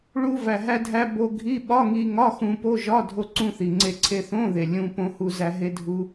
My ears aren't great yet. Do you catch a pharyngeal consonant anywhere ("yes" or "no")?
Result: no